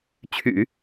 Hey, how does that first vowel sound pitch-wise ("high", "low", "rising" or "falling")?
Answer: low